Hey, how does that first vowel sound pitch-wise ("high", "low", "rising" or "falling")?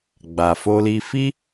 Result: low